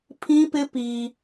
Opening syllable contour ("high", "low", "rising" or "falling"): high